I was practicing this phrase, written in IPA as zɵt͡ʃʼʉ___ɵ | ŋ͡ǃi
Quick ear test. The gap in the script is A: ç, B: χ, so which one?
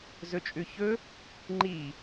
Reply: A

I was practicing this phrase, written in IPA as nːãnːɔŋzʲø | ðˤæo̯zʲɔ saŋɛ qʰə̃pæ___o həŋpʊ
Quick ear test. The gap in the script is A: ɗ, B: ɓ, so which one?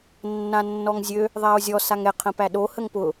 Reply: A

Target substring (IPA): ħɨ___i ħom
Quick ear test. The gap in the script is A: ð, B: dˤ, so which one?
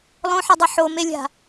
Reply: B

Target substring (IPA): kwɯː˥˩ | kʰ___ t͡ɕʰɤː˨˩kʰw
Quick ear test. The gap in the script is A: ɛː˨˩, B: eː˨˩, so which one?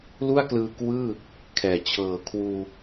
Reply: A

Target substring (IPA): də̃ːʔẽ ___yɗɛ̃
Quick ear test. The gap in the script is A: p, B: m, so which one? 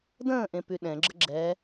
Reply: A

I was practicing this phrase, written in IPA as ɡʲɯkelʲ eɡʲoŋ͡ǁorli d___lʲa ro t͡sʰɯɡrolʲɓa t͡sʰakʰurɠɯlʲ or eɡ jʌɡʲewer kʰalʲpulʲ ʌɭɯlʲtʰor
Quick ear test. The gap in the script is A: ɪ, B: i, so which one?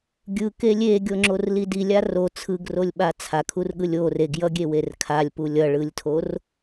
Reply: B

